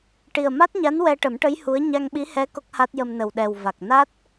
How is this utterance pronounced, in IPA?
ʈi˨˩ə̯ma˦˥t̚ɲa˧˥n wɛ˧ʈə˨˩˦mʈə˧˥j hu˧˥ə̯ ɲa˧ŋɓi˧˥hɛ˧˥ ko˦˥k̚ha˦˥t̚jə˧m nə˨˩wɗɛ˨˩w va˨˩k̚ na˦˥t̚

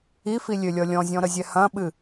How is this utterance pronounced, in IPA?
ifi lʲølʲɔlʲɔ̃zʲɔ̃ ɾəzʲɛhɐ̃ɓɨ

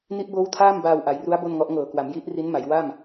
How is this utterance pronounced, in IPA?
ni˦˥ʔboː˦˥wtʰaː˥˩m baː˧wʔa˩˦jru˦˥a̯ bo˥˩nŋɔ˦˥ʔ ŋɤː˨˩kwa˩˦m ji˦˥ʔ ri˦˥nma˩˦j wa˥˩m

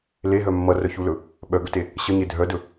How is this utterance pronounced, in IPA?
leɦœ mːʌrœçulɵ | ɓœɡɵte | ɕʌɲe dʱœdɵ

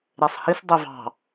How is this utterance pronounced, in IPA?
ɾesˤhis dˤøvɑ̤

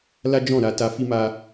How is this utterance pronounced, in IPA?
la˦d͡ʒɔ̃˦˨ɾa˧ ta˧ fi˦ma˦

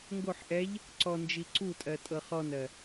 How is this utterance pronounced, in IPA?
ŋɡoħ ʔɛʎ | ǀɔnd͡ʒi ǀutʼɜtʼɤ χɔnɜ

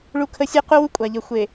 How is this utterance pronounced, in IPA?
ɭu˦kʰə˦ sʲe˦qu˦wu˦ kʷʼa˨ʎə˨xʷe˨

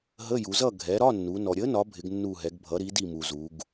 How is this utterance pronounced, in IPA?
ɦə˧˥˧ju˩˧zʌ˥˨ ɡʱɛ˩˧ ɾɒ˧˥˧nːu˩˧ nɔ˩ ɾʲə˨˥nɒ˩˧ bʱɪ˩˧ɡnːu˧˩ɦɛ˩˧ɡ bʱʌ˩˧ɾi˩˧di˧˩ mu˩zu˩˧ɡ

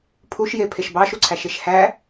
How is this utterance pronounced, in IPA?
pʰuʃje pʰeʃbɑʃuǀʰæ ʃeʃhæ

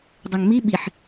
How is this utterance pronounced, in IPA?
dˤøŋmi ɓiħ

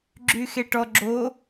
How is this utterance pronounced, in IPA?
ɡ͡ǁyxeʈɔ ɡ͡ǁo

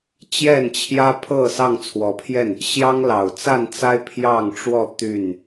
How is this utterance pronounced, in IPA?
t͡ɕjɛ˥˨nt͡ɕʰjä˦pʰɤ˥˨ sɑ˥˨ŋt͡sʰwɔ˨˦pʰjɛ˥˨n | ɕjɑ˦ŋlɑ˨˩ʊ̯t͡sa˥˨nt͡sa˦ɪ̯ pʰjɑ˥˨ŋʈ͡ʂwɔ˥˨ t̪y˥˨n

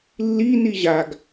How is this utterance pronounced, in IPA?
lːi niʑaɡ

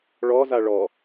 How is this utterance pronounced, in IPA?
ɭɔza ɭɔ

